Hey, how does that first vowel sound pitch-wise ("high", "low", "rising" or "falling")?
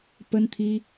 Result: high